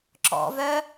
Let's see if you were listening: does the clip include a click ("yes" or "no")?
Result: yes